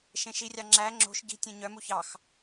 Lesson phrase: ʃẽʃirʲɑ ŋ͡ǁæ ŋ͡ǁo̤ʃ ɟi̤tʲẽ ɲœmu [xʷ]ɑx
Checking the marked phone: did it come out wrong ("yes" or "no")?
yes